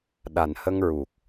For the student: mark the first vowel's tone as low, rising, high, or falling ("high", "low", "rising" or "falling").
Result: low